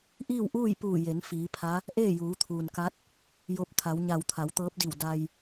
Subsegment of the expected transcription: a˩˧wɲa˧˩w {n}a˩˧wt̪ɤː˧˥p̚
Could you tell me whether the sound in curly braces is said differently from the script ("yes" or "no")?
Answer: yes